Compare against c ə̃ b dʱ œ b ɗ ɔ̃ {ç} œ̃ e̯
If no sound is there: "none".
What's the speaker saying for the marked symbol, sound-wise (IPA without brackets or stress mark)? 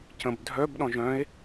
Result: ʒ